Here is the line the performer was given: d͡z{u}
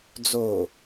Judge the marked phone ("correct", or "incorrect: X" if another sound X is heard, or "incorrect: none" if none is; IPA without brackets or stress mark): incorrect: o